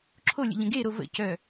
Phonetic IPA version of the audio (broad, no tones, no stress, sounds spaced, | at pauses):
ǁʰ o lʲ ə̰ ʎ ə̃ ɡ e ɾ o v ə̰ c œ